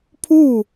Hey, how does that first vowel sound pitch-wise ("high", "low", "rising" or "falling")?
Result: falling